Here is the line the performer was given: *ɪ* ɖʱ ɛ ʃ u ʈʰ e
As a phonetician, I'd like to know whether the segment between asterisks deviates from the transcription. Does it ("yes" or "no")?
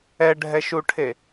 yes